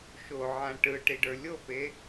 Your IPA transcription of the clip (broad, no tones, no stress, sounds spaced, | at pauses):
ʃ o ʕ ã ʈ ɯ ʈ i ɖ ə˞ lʲ o p e